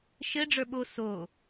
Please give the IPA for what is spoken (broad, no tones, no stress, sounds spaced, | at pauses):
ʃ ɘ ɖ͡ʐ ə˞ ɓ o s o